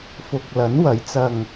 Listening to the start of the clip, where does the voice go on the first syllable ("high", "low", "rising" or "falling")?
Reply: low